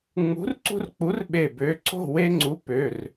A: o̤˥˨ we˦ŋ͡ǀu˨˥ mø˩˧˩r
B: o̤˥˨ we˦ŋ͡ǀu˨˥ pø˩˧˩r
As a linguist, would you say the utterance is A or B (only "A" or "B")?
B